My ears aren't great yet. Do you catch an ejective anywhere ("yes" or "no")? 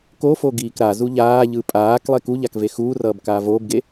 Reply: yes